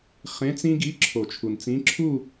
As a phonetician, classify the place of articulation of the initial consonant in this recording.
uvular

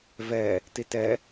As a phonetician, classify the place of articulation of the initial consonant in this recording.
labial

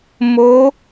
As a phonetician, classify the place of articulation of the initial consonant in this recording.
labial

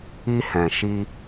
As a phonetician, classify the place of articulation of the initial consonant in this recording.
glottal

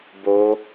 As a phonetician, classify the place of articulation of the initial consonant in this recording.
labial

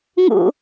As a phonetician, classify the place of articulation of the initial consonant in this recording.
velar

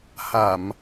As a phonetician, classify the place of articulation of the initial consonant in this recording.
glottal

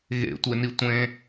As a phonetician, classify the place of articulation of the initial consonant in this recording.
velar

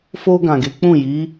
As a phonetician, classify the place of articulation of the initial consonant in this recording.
labial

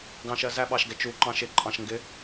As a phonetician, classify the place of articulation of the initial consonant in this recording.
velar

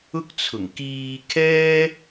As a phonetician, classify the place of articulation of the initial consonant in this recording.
velar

